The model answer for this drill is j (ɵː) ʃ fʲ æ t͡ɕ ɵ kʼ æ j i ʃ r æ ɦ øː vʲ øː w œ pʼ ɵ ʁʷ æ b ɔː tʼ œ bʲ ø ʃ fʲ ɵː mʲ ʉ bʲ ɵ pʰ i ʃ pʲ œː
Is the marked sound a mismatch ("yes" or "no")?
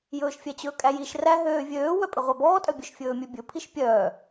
no